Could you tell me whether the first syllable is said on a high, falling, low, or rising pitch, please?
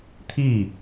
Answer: falling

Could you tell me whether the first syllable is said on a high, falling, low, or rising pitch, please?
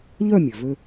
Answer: falling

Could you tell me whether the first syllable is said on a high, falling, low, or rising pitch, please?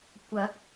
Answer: rising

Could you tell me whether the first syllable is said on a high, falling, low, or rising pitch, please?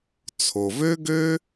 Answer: low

